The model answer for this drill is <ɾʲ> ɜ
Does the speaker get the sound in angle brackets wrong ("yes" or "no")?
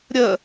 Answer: no